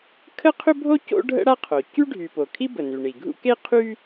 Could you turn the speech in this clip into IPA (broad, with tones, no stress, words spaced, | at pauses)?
kʰə˥qʰʏ˥bʱo˥ co̰˥ɖʱə̰˥ ɽa˥qʰo˩ cy˥ɖʱy˩ po˩kʰi˥ bə˩ny˩ ɳi˩ɡʱṵ˥ ke˥ qʰy˥